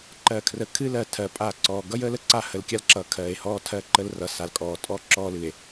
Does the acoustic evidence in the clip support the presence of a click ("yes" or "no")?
yes